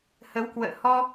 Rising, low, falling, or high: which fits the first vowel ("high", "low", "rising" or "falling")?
rising